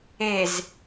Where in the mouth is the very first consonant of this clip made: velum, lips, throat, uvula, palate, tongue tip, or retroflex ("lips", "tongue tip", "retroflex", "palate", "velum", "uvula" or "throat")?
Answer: tongue tip